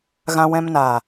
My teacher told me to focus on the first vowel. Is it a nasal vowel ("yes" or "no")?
yes